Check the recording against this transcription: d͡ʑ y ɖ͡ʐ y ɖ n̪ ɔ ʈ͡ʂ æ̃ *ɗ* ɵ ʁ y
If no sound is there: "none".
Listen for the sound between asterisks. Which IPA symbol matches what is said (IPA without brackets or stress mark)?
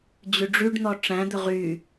d̪